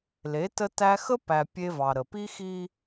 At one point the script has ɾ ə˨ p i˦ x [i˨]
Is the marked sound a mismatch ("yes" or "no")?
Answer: yes